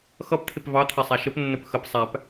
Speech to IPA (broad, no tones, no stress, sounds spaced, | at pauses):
x ʌ p t̪ʰ ɪ p v ɑ t̪ʰ ɛ sˤ æ ʃ ə p nː ə p x ə p sˤ æ p